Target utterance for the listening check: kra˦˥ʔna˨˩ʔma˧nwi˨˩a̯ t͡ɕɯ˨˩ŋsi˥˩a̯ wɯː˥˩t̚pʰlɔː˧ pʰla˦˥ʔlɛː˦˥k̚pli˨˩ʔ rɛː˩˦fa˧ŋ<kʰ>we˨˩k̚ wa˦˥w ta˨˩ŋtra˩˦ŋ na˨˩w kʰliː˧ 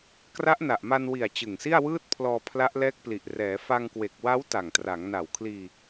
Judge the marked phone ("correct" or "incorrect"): incorrect